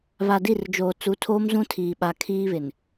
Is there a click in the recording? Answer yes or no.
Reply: no